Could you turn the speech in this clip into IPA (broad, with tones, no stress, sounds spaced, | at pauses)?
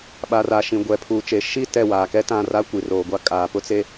ɓ a˨ r a˨ ʃ ĩ˨ ɡʷ ɛ˨ pʰ uː˨ t͡ʃ e˨ ʃ i˦˨ t ɛ˦˨ w aː˨ k ɛ˦ t ã˦˨ r a˦ kʷ i˨ r oː˨ ɡʷ a˦ kʼ aː˨ p ʊ˦ t͡s e˦